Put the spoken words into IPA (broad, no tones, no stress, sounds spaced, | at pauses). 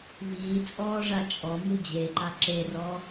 v iː t͡sʼ ɔː ʐ a t͡ʃʼ ɔ m u d͡ʑ e ǃ a ǁ e r ɔ